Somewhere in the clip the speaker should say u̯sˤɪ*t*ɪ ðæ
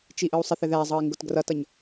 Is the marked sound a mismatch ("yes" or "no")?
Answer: yes